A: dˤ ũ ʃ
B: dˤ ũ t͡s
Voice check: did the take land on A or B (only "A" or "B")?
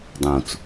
B